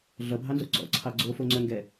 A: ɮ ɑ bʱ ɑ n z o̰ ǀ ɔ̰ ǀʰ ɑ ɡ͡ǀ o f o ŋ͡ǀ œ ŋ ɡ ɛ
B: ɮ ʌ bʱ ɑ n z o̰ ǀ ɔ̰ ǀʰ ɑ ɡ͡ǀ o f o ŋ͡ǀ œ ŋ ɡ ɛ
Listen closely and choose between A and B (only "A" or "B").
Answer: B